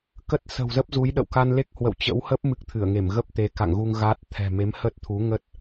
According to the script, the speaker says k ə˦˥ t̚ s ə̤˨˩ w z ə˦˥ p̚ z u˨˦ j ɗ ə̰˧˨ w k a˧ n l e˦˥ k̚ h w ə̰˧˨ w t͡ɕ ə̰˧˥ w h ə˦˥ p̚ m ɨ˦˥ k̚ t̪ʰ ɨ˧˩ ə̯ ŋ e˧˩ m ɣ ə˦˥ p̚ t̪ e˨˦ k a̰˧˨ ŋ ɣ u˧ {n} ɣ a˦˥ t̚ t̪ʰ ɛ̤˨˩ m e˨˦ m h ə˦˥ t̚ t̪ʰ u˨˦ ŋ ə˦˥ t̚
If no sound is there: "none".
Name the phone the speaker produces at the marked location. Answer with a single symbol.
ŋ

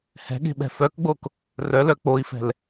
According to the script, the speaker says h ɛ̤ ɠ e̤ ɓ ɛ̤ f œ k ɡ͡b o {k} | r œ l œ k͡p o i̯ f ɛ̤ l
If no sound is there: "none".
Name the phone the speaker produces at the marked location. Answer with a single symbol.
k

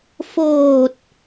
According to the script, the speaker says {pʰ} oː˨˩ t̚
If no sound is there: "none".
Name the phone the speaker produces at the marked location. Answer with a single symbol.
f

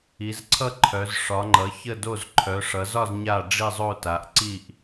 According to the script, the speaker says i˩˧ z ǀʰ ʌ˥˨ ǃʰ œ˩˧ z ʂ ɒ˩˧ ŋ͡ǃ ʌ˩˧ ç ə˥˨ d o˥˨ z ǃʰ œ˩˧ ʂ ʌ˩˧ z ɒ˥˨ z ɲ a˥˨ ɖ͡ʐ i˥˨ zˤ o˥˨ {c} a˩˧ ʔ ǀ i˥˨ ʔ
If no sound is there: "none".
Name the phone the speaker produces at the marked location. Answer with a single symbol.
t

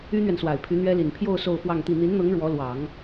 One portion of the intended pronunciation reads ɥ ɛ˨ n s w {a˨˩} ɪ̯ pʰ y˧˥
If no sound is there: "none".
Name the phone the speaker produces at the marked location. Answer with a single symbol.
a˨˩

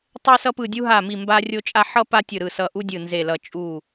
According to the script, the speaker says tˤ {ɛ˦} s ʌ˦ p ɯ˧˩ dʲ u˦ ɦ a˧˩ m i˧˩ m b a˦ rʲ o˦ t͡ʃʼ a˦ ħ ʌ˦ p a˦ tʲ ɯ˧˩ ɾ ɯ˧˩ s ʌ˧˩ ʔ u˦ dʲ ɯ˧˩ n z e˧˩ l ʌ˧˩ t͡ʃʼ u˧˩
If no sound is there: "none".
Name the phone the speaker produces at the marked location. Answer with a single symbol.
ɛ˦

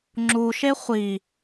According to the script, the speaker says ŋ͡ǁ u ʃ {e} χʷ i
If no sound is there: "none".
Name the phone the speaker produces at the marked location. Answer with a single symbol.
e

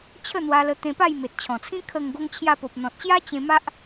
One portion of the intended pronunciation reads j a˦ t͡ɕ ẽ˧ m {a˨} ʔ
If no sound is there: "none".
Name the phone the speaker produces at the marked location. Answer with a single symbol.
a˦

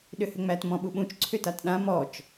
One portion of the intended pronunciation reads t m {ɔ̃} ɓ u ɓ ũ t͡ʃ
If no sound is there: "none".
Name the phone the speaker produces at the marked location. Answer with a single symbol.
ɔ̃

